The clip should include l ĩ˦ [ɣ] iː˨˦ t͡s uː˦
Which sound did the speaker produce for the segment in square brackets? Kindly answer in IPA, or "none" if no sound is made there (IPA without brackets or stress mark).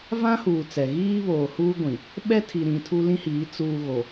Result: h